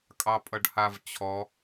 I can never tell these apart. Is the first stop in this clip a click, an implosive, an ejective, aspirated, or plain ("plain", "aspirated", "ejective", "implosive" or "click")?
ejective